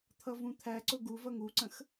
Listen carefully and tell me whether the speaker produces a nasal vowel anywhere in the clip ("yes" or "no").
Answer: yes